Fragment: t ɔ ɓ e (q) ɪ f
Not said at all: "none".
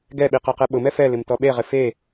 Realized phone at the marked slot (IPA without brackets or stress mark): ʁ